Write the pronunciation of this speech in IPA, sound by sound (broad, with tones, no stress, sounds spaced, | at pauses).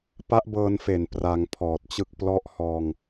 p a˦˥ ʔ b ɤː˧ n f e˨˩ n p r a˧ ŋ pʰ ɔː˨˩ t̚ t͡ɕ ɯ˥˩ k̚ p l ɔ˥˩ ʔ h ɔː˧ ŋ